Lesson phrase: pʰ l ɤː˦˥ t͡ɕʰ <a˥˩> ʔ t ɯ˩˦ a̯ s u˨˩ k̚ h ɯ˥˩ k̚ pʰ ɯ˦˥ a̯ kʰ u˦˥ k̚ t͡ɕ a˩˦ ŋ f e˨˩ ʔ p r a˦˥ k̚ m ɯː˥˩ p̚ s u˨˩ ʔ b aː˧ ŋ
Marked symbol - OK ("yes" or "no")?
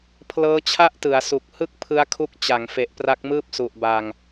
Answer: yes